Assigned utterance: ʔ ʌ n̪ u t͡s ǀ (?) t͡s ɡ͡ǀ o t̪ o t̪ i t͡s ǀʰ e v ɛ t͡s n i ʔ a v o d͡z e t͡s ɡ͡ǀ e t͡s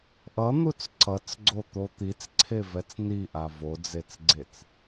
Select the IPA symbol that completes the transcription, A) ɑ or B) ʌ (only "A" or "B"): B